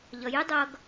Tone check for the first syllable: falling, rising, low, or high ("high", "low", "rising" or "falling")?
low